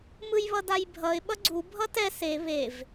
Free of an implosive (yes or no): no